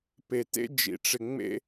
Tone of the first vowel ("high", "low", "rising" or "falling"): low